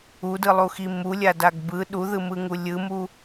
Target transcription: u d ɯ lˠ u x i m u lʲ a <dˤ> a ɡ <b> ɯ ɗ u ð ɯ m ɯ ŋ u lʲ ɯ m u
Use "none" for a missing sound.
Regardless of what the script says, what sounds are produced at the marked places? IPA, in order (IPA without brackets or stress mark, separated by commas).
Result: d, b